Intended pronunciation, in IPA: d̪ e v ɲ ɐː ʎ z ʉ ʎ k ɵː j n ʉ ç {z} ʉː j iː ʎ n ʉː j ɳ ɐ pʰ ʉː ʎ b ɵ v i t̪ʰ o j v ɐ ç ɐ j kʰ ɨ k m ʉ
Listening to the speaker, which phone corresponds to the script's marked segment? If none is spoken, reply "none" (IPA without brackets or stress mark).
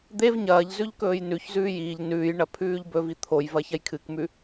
z